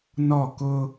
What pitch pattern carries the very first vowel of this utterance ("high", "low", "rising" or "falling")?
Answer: falling